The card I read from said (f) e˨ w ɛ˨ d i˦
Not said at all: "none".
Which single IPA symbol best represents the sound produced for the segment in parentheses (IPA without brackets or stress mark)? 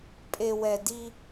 pʼ